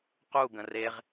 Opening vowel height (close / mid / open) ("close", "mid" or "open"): close